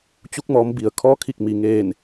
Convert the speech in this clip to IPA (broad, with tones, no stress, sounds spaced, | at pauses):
t͡ɕ u˧ k̚ m ɔː˩˧ m b i˩ ə̯ kʰ ɔː˧˥ kʰ i˧˩ k̚ m i˩ ŋ eː˧˩ n